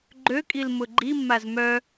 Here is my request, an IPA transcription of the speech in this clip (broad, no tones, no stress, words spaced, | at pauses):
ɡ͡ǃøkʼilmʊ ɡ͡ǃimːaz mœ